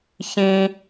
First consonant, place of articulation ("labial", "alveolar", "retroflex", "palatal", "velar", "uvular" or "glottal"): palatal